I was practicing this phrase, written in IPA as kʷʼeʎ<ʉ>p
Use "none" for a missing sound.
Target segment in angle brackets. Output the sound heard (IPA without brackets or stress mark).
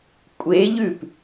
ʉ